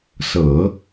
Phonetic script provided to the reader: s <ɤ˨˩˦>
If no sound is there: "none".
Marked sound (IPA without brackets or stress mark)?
ɤ˨˩˦